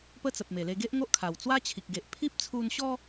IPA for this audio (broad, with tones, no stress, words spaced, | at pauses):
pə˦t͡sə˨p̚me˨˩le˧ ɡe˦ʔŋo˦ʔkʰa˨˩w t͡swa˦t͡ɕʰi˨k̚ɡe˨ʔ pʰi˦p̚t͡sʰu˧nɕɔ˦